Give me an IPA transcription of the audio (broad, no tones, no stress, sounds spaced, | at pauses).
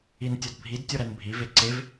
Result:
i n tʲ ɒ d bʱ i d tʲ o ɾ æ n bʱ i v e ǀ e v